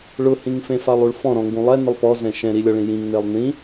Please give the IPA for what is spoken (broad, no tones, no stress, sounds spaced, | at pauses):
ɭ ʊ h ĩ ŋ f ẽ f a lˠ u ɭ f ɔ̃ ɾ ɔ̃ ŋ ɡ ũ lˠ ɛ n ɪ lˠ p ɔ z ɛ̃ ʃ ɛ̃ ɾ i lʲ ɔ ɭ ĩ j ĩ ŋ n e lˠ n ĩ